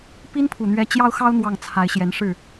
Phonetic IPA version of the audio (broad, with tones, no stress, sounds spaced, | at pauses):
p i˥ n pʰ u˨˩ n̪ ɥ ɛ˧˥ t͡ɕ j ɑ˥ ʊ̯ x ɑ˥ ʊ̯ n̪ w ɑ˥˩ ŋ t͡sʰ a˧˥ ɪ̯ ɕ j ɛ˧˥ n ʂ ɻ̩˥˩